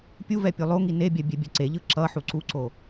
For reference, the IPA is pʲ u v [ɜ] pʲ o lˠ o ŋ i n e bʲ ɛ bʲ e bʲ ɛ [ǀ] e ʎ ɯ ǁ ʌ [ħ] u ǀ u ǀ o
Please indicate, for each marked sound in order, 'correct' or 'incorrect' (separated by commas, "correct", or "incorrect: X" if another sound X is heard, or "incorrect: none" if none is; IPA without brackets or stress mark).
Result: incorrect: ɛ, correct, correct